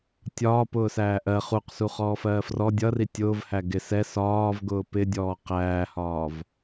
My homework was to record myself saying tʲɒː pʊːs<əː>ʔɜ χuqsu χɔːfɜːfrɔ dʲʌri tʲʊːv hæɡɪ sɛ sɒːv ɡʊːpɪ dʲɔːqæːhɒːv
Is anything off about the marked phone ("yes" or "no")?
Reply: yes